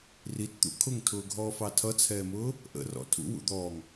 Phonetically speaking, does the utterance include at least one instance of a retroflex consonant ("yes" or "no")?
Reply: no